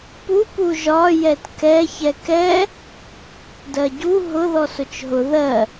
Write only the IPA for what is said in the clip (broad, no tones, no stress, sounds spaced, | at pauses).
p u p u ʒ ɒ j ɛ t k ɛ ç ɛ k ɛ | d ɜ ɟ u ɦ ʊ ð ɔ s ʊ t͡ʃ ɦ ʊ ð ɜ